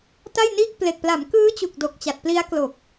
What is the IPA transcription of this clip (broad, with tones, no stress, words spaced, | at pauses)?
ta˥˩jniː˥˩k̚ple˨˩k̚ pla˩˦mkɯː˦˥ t͡ɕu˨˩k̚do˨˩k̚ t͡ɕa˨˩t̚pli˦˥a̯klo˨˩k̚